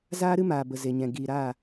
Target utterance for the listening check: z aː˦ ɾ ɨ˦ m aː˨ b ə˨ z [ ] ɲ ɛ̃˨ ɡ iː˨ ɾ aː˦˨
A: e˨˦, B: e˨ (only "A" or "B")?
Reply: B